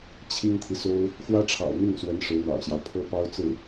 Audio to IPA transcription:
t͡ɕʰ i˥ ŋ t̪ʰ i˨ s o˥ ʊ̯ | x w ä˥ ʈ͡ʂʰ ɑ̰˨˩ ʊ̯ n̪ i˥˩ ŋ s w ə˧˥ n ʂ ɻ̩˧˥ n̪ ɑ̰˨˩ ʊ̯ ɕ j ɑ˦ ʊ̯ pʰ ɤ˥ p ɑ˥ ʊ̯ t͡s ɹ̩˥˩

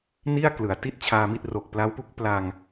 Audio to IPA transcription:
n i˥˩ a̯ k l ɯ˩˦ a̯ t i˥˩ t̚ t͡ɕʰ aː˧ m i˥˩ t̚ r o˨˩ k̚ p l a˦˥ w p u˦˥ k̚ p l a˧ ŋ

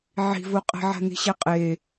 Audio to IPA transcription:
ʕ i̤ v o qʼ ɛ̤ ʕ a̤ n i̤ ɕ ɛ qʼ e

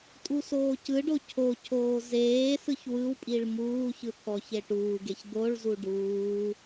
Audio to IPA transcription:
tʼ u s oː c ɯ ɖ o cʰ o cʰ oː z eː s ɯ ç w ɯ w pʼ i ɭ m uː ç ɯ t̪ʰ ɔ ç e ʈ uː ɡ e ç d̪ o ɭ z u ɖ uː

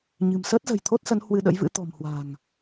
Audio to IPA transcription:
ɲ ɨ̤˨˩ m s əː˦˥ t̚ z ə̤˨˩ j t̪ʰ o˦˥ t̚ s ə˨˦ n h w ɨ˧ ɗ ə̰˧˥ j v ɨ̰˧˥ t̪ ɔ̤˨˩ m h w a̤˨˩ ŋ

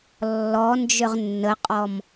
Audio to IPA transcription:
lː ɔ n d͡ʒ ʏ ʁ nː ə qʼ ɔ m

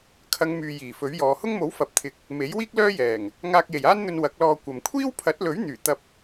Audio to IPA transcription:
kʰ ɐ˨˧ ŋ m yː˨ j iː˨˩ f ɵ˨˥ ɥ j ɔː˨˧ h ʊ˥ ŋ m o˨˥ w f ɐ˨˥ p̚ t̪ʰ ɪ˨˥ k̚ | m e˨˥ j w iː˥ k̚ l œː˥ j ɛː˨˩ ŋ | ŋ aː˧ k̚ j e˨˩ j aː˥ n n̪ ɵ˧ n w ɐ˨˥ k̚ l ɔː˧ kʷ ɐ˨ m kʷʰ iː˥ w pʰ ɐ˨˥ t̚ l ɵ˨˥ ɥ n̪ yː˨˩ t̪ ɐ˧ p̚

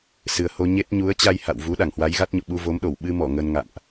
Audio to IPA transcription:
s ɨ˨˩ ə̯ h o˧ ɲ e˦˥ t̚ ɲ u˨˦ ə̯ t͡ɕ a˧ j h a̰˧˨ w v u˨˦ ɗ a˧˩ ŋ h w a˨˦ j ɣ a˦˥ t̚ ɲ o̰˧˨ ɓ u˧ v o˨˦ m ɗ o˧˩ w ɓ ɨ˧ m ɔ˧˩ ŋ ə˧ n ŋ a̰˧˨ m ʔ

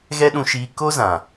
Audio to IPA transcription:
ɣ ɛ˦ ɗ ũ˧ ʃ iː˧ k o˦ z ã˨

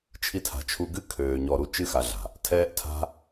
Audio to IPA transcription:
t͡ʃʰ i˧ tʰ a̤˨ t͡ʃʰ u˧ ɡ ɨ˦ kʰ øː˧ ɲ ɔ˧ ɾ u˦ t͡ʃ ɨ˦ x a˧ ɮ a̤˨ | tʰ ɛː˦ ʔ tʰ a̤˦

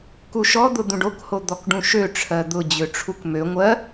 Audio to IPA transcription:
k u ʃ ɔ d̪ ʊ d̪ ũ ɖ o k h o d̪ ɔ k ɖ ũ ʃ ø ʈ͡ʂʰ ɜ d̪ ʊ d͡ʑ ø ʈ͡ʂʰ u k m ø ŋʷ ɜ

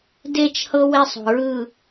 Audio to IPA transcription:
d e˦˨ t͡ʃ h ɤ˦ w e˦ sˤ o̤˨ ɹ ɯ˦˨

